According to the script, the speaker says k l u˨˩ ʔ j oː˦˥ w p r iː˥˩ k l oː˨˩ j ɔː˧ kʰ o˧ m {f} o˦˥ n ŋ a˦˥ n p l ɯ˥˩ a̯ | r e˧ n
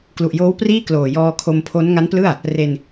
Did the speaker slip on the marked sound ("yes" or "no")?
yes